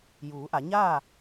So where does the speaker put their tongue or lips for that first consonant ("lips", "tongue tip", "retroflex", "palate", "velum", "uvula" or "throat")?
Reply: palate